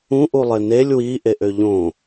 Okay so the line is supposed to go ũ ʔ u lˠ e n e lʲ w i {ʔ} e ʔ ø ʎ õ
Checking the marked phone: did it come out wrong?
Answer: no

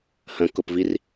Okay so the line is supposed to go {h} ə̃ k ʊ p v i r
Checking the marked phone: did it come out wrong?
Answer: no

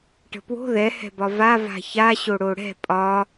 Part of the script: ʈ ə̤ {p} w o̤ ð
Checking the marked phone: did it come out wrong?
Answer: no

